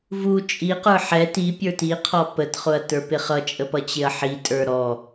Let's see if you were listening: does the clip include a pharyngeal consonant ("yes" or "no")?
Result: yes